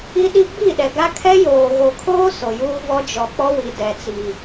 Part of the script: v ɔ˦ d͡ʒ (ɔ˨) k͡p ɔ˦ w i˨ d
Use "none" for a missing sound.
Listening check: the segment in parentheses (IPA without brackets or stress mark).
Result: ɔ˨